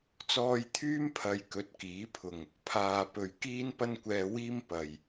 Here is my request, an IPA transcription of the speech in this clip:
t͡sɔː˧jt̪ʰyː˥m pʰɐ˧jkɵ˨˥t̚kiː˨˥pʰʊ˨ŋ | pʰaː˨ pɵ˨ɥ kiː˥npɐ˥nkʷɛː˧wiː˥m pɐ˨j

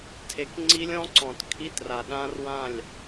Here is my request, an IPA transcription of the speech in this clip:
tʰe˨˦kŋ͡ǀi˦˥lʲɔ̃˦˥ǀɔ̃˨t kʰi˧˥˧tra˨ ɗã˦˥rwã˥˩lʲ

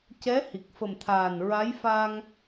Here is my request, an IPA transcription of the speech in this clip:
cɛ˧˥ hi˨˩k̚fə˨˩m t̪ʰaː˨˩nɹa˧˥j fa˧ŋ

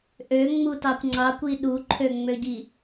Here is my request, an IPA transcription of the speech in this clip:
ʔøŋ͡mutɑkʷ ŋ͡ǀɑkʷi ɗuǃʰøŋ͡møɟi

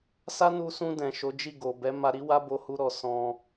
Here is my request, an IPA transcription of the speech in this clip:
sa˦nu˧sũ˧ dɛ̃˨ʃo˨˦ d͡ʒi˦˨ɡo˨bɛ˨˦ ma˧ɾi˦ wa˦bo˧hu˧ ɾɔ˨ sɔ̃˧

